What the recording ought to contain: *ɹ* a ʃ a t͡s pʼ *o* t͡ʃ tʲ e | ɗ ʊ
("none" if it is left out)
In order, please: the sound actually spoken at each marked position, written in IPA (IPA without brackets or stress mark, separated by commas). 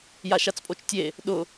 j, o